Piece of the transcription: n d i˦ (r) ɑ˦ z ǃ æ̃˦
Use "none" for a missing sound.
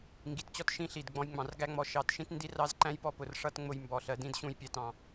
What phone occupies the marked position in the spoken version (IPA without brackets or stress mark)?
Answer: r